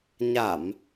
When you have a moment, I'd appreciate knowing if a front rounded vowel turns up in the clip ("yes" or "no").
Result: no